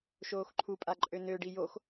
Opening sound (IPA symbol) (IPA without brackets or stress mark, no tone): ʃ